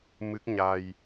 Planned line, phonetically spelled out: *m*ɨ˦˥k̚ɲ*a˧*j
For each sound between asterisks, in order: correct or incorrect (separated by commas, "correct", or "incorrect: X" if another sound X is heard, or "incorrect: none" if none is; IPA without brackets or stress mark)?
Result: correct, correct